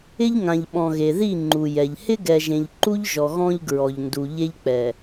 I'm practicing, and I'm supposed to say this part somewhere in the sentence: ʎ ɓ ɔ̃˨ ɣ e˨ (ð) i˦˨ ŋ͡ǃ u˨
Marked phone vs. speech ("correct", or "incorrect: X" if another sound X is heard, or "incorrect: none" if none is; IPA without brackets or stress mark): correct